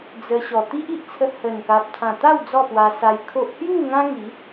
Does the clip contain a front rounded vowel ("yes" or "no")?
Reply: no